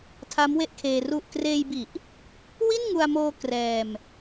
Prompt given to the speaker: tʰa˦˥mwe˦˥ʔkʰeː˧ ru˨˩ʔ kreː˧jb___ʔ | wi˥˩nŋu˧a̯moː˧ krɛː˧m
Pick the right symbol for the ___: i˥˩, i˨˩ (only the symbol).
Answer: i˨˩